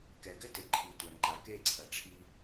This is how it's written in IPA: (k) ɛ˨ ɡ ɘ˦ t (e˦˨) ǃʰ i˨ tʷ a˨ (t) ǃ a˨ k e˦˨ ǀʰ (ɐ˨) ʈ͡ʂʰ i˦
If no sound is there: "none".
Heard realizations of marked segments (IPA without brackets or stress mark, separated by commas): k, e˨, n, ɐ˨